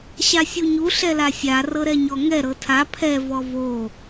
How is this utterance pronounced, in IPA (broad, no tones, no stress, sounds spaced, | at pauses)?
ɕ a sʲ u ɲ u ɬ ɛ l a sʲ a r ɤ ɾ ɛ ɲ ɔ ŋ ɛ ɾ ɤ tʰ a pʰ ɛ v ɔ v o